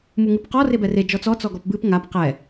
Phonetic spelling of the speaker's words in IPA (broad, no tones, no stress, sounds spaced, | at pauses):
m u ŋ ɨ p q ɔ r e b ɛ r e d͡ʒ ɔ t͡s ɔ t͡s ɔ ɡ ɔ p b ɨ p ŋ a p q ɛ